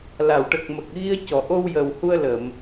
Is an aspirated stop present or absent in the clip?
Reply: absent